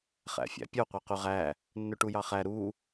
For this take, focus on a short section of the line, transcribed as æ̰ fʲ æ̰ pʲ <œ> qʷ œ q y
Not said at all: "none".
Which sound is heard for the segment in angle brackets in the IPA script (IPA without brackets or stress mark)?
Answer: œ